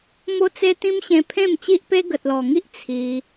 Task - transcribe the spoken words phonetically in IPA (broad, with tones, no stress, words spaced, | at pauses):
mo˦t͡se˦t̪ĩ˦m ɕẽ˦ pʰẽ˥˧mt͡ɕi˦ʔpe˦ ɡə˨t̚lɔ˨˩ŋi˦ʔ t͡sʰi˧